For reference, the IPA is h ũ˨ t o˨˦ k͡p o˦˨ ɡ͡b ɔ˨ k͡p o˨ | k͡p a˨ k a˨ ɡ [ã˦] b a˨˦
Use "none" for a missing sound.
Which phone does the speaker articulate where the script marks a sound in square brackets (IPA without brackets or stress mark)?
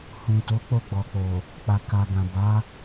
ã˨